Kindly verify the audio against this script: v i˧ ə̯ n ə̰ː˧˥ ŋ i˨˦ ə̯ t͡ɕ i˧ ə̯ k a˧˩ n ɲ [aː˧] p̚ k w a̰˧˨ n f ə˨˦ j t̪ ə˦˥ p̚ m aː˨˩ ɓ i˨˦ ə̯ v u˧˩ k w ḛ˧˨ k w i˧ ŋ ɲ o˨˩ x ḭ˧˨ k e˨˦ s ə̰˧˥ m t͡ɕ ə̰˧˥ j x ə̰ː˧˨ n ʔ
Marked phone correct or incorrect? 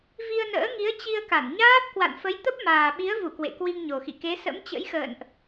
incorrect